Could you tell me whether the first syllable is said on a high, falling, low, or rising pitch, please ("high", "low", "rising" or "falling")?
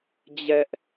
high